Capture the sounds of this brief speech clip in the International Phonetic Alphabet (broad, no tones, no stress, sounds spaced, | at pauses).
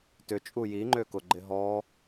t ʏ t͡ʃʼ u j i ŋ͡ǃ ø k ʊ ɡ͡ǃ ɪ ɦ ɔ